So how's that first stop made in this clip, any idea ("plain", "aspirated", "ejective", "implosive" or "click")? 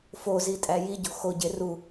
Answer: ejective